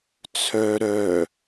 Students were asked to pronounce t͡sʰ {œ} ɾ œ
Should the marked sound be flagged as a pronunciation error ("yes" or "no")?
no